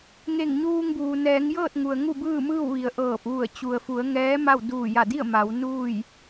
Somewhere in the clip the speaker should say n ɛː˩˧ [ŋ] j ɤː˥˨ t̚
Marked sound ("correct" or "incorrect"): correct